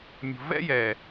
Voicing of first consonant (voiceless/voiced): voiced